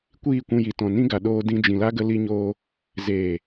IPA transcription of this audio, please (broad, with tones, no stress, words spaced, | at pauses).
kʷiː˦˨kʷũ˧ ji˨ tɔ̃˨nĩ˦ ɡa˨ɗoː˧ dĩ˧d͡ʒĩ˨la˦ ɡə˧ li˧ɲoː˧ | zeː˨